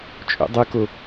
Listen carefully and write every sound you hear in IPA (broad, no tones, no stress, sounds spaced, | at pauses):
t͡ʃʼ ṵ dˤ ɨ k o